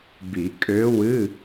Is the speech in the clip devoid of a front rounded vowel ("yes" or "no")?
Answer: no